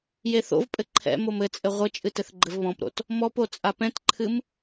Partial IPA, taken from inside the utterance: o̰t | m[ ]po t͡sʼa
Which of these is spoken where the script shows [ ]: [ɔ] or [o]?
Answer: ɔ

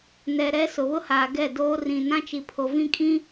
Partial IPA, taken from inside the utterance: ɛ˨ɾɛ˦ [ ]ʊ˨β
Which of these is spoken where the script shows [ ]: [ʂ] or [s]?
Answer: s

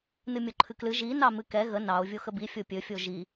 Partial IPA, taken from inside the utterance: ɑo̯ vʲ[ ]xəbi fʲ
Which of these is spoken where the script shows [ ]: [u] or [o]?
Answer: o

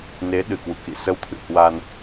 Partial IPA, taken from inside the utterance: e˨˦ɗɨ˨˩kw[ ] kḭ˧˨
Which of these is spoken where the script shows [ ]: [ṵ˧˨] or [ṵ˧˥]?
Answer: ṵ˧˨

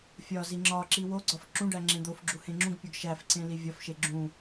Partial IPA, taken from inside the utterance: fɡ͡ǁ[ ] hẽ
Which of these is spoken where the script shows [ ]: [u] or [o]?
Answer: u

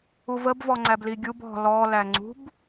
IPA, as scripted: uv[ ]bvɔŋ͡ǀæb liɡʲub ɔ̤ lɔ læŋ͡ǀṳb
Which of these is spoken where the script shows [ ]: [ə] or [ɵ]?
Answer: ə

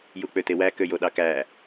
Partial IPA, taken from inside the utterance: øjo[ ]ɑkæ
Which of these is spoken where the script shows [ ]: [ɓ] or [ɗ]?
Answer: ɗ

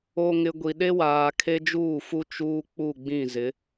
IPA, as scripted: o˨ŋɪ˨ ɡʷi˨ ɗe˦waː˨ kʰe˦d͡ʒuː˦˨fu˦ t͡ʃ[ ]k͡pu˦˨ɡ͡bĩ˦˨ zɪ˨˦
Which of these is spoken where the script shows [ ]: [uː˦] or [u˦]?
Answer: uː˦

